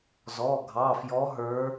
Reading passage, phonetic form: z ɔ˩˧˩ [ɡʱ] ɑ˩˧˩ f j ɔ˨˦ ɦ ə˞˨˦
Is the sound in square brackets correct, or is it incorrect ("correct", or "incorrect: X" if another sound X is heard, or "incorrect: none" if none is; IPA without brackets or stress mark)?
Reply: correct